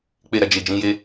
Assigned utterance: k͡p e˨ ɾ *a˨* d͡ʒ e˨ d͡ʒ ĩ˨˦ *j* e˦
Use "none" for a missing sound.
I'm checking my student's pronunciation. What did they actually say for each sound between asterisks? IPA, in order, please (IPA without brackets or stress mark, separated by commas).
a˨, j